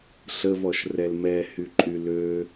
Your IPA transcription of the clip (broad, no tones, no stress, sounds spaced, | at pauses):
ɬ ə v ɔ ʃ r ɛ l m ɛ h y ǃʼ y l ø